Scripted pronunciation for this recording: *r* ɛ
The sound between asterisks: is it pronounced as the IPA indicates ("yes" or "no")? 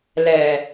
no